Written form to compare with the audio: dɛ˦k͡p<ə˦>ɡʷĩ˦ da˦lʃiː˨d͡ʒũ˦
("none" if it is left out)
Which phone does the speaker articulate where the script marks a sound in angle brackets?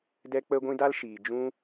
ə˦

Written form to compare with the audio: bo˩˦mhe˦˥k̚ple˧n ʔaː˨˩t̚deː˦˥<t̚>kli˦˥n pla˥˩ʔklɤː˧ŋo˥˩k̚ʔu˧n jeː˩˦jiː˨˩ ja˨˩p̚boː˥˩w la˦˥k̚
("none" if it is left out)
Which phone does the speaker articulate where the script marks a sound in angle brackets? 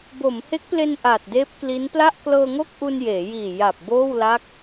p̚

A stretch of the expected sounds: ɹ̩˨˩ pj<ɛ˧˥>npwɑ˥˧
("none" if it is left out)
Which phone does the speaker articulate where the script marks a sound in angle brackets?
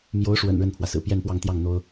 ɛ˥˧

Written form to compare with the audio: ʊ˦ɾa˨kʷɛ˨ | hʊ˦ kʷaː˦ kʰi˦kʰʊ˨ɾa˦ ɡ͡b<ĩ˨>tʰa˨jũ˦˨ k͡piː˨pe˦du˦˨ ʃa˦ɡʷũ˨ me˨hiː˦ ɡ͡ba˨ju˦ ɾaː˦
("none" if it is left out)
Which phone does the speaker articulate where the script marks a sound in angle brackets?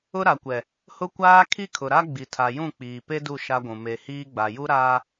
i˨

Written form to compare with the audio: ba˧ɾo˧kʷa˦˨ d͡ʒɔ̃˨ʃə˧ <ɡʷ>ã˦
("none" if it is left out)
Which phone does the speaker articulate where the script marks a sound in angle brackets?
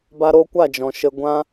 ɡʷ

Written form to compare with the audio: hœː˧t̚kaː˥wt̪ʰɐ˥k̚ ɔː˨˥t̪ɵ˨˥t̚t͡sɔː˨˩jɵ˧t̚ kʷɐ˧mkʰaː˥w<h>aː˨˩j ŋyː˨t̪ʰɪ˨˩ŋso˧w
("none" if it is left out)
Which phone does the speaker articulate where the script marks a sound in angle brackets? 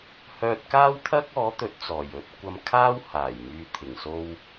h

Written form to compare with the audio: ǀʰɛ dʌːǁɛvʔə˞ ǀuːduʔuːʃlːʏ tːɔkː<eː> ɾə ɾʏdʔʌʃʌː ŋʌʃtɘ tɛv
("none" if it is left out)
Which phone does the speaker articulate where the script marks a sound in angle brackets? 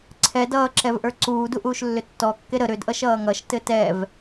e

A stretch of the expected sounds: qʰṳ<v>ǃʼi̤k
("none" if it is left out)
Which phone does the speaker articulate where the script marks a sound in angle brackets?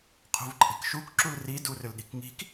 v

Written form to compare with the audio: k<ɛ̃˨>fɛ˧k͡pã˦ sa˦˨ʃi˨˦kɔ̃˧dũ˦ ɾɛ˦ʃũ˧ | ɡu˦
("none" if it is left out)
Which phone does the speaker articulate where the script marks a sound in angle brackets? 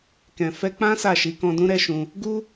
ɛ̃˨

